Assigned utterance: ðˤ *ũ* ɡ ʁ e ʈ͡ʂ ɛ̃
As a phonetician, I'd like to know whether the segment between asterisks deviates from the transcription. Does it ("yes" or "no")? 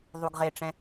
yes